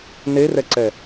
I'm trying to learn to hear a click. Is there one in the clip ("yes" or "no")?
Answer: yes